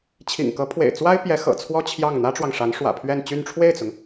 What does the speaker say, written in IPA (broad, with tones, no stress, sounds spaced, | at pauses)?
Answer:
t͡ɕʰ ḭ˨˩ ŋ k ɤ˧˥ pʰ w ḛ˨˩ ɪ̯ t͡s w a˥ ɪ̯ p j ɛ˧˥ x ɤ̰˨˩ t͡sʰ w ɔ˥ t͡ɕʰ j ɑ˥˩ ŋ n̪ ä˥ ʈ͡ʂ w ɑ˨ ŋ ʂ a˧˥ n ʂ w ä̰˨˩ pʰ ɥ ɛ˥˧ n t͡ɕ y˥˧ n ʈ͡ʂʰ w e˥˩ ɪ̯ t͡s ʊ˩ ŋ